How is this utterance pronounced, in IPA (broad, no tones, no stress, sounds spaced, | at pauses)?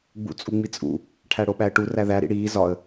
ɡ͡b ṵ t͡sʼ u ŋ͡m i t͡sʼ ṵ | ʈʰ æ ɽ o ɓ æ ə̯ ʈ u r æ ð æ ɾ ḭ ɽ iː z ɒ ə̯